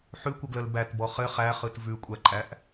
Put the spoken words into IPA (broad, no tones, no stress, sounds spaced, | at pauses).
ħ ʉ kʷ ə ɡ l ə l b æ t b ɔ χ ɘ χ æ χ ɯ t v ʉ kʷʼ æ ǃʼ æ ʔ